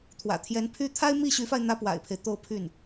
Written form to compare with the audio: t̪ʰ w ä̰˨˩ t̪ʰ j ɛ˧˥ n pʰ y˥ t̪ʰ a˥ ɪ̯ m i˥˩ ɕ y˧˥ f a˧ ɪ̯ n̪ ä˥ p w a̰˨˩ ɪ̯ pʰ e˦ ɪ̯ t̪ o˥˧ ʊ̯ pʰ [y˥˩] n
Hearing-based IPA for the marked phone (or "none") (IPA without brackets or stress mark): y˥˩